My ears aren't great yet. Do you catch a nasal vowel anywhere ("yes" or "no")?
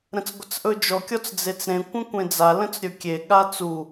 yes